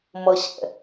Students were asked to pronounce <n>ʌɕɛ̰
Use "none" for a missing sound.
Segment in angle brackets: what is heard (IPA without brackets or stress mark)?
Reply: m